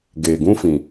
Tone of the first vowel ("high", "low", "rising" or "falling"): low